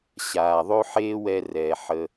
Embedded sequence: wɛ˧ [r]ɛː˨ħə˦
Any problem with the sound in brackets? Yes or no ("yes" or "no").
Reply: no